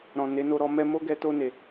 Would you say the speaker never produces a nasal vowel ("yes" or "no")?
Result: no